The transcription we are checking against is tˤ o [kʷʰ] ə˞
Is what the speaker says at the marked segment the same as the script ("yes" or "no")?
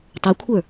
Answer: yes